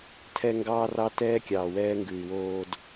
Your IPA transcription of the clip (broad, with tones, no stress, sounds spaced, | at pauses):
tʰ ɛ˦ ŋ ɡ ɑː˦ r ɑ˦ t ɛː˦ kʲ ɑː˨ w ɛː˦ ŋ ɡ ʉ˨ y̯ w oː˨ d